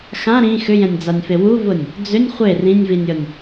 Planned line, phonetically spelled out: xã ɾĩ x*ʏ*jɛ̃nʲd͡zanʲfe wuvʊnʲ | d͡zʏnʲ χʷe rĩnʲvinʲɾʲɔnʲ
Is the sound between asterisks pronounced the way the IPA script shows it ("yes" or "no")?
yes